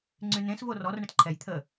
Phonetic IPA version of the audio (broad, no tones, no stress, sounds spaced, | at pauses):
ŋ͡ǀ y n ẽ s v o r ɔ r ɳ ə t ǃʰ ɛ j t̪ʰ ə